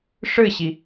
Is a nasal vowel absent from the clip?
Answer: yes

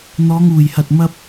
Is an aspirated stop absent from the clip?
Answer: yes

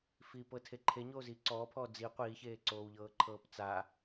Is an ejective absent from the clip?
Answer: yes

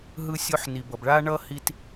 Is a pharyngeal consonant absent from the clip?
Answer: no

